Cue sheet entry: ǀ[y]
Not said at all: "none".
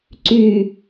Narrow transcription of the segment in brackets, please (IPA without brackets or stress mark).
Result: y